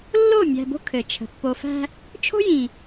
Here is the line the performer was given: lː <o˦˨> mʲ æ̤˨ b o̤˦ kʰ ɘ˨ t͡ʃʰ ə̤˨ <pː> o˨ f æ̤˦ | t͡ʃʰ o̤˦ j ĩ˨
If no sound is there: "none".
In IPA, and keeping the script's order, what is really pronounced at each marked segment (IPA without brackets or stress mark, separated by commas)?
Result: o˦˨, pː